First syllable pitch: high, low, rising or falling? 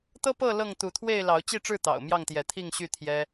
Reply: high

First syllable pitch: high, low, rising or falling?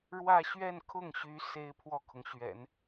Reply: falling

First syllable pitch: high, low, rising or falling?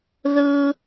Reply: high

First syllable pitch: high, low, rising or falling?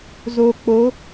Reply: low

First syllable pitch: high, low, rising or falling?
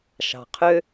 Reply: low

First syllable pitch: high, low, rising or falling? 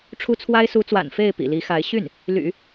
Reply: high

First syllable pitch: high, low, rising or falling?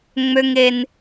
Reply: low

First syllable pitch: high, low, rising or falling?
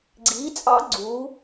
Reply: rising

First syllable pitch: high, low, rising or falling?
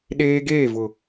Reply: high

